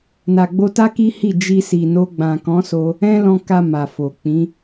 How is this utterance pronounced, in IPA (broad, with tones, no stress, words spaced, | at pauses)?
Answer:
na˨ɡ͡bo˧ta˦ ki˦hi˦˨ d͡ʒi˧si˨no˧ ɡ͡bã˨kɔ̃˨˦so˧ | ɛ̃˦lɔ̃˧ka˧ ma˨fo˨ k͡pĩ˨˦